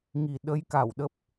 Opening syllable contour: low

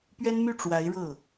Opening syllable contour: high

